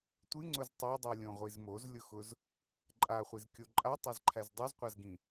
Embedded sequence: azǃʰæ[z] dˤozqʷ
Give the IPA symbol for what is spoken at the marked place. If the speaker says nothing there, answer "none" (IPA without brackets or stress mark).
z